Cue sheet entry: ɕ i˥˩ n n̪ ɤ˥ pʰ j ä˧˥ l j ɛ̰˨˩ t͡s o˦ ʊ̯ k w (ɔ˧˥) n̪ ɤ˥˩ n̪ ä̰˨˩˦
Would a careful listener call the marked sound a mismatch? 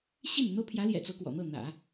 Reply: yes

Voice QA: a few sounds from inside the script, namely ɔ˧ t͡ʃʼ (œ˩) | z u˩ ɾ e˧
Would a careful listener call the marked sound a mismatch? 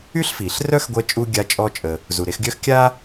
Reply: yes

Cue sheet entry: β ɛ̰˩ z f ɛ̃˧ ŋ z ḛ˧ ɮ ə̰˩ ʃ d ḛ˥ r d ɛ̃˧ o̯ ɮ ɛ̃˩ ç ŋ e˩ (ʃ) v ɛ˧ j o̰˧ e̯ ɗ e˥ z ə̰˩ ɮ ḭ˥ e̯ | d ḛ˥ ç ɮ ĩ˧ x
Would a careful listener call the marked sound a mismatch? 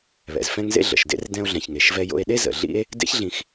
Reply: no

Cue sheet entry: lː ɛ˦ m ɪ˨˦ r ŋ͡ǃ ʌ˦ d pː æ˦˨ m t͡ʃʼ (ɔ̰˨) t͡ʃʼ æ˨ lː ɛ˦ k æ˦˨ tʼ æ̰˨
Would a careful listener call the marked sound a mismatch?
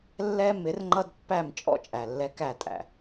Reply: yes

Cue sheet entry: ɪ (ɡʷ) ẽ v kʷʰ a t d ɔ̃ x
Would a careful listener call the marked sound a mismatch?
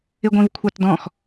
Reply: no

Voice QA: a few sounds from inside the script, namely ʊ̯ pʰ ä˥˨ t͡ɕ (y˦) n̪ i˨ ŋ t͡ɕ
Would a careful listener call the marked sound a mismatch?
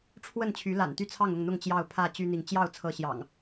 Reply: no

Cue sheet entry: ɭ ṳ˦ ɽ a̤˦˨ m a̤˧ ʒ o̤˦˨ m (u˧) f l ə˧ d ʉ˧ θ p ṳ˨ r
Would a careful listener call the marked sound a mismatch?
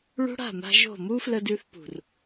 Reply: yes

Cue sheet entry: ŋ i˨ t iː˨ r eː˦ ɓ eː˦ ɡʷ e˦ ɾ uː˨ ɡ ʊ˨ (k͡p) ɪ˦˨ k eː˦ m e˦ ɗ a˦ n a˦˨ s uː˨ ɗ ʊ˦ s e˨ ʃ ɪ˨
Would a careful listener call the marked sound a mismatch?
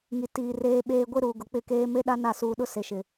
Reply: no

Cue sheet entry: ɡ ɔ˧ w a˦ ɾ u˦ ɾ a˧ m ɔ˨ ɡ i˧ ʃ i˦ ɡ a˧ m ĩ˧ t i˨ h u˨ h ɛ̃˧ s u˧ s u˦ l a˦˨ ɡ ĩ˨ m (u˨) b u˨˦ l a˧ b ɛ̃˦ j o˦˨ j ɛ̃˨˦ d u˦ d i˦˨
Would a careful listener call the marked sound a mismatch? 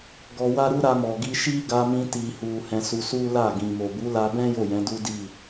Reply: yes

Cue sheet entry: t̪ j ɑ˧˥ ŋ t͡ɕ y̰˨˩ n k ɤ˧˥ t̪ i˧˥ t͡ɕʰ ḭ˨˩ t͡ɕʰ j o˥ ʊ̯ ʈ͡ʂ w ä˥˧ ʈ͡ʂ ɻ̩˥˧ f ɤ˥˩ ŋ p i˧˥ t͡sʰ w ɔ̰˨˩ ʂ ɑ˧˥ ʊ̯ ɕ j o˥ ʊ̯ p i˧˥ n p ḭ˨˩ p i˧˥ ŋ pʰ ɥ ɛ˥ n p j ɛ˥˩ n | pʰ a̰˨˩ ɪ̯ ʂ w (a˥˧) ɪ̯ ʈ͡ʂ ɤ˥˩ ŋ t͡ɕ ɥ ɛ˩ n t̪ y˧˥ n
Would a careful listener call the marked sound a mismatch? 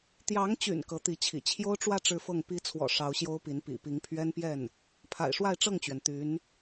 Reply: no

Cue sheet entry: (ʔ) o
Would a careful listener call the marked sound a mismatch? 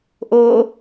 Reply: no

